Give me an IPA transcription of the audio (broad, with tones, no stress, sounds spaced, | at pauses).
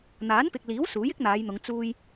n̪ aː˨˥ n p ɪ˨ k̚ l iː˨˥ w s uː˨˥ j ɪ˥ k̚ n̪ aː˨˧ j n̪ ʊ˨˧ ŋ t͡s uː˧ j